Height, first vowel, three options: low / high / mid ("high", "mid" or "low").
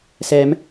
mid